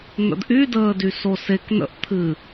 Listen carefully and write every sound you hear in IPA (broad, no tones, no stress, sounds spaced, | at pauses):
n̪ ə̰ d ʔ y d əː d y s o s e k n ə̰ ʔ t̪ʰ ɨ